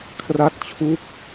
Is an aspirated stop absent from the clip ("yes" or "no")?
no